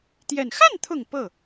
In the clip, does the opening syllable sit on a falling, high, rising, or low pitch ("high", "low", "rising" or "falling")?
low